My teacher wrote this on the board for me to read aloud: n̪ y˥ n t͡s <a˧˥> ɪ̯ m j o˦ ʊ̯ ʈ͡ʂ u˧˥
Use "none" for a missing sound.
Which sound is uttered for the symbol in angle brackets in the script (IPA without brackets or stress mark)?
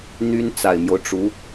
a˨˩